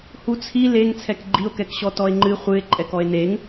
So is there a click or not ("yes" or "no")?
yes